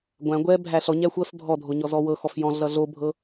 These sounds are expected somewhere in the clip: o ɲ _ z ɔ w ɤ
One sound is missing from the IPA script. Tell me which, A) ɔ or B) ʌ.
A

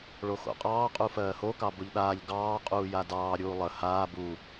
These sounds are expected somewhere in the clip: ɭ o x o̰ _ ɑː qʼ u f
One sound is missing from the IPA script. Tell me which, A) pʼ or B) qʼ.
B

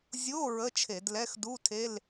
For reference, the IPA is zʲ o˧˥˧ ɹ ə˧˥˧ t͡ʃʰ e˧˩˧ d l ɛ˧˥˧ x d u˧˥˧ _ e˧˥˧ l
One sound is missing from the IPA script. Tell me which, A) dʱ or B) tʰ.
B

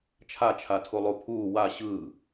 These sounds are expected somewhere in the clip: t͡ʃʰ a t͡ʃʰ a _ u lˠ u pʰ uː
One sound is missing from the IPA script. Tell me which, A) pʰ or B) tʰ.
B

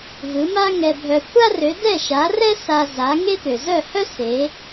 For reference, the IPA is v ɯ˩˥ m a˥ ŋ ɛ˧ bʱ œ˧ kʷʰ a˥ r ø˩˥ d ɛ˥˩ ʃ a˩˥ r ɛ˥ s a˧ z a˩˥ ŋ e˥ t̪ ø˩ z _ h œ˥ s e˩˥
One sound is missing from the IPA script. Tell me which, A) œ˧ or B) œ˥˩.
B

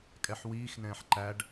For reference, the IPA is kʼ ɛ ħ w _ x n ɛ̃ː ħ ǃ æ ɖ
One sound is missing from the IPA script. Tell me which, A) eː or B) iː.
B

